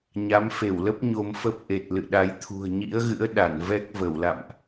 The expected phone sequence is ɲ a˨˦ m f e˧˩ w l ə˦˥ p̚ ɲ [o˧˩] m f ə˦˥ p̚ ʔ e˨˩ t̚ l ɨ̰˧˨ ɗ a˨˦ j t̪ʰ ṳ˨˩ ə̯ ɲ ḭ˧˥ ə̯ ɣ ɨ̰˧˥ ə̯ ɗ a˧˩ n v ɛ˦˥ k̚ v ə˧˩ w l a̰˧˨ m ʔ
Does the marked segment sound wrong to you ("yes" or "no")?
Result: yes